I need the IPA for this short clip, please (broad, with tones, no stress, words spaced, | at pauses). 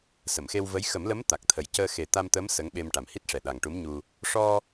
sə˨˩˨mxe˧wvə˧˥j xə˨˩˦mlə˧˥m t̪a˨˩k̚t̪ʰə˨˩j cəː˧xe˨˩ t̪a˧m t̪ə˧˥m sə˧˥ŋɓe˧m ʈa˨˩mhi˦˥t̚ʂɛ˨˩ ɗa˨˩ŋʈu˧˥mɲu˧ | ʂɔ˧